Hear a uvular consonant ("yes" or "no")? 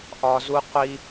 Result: yes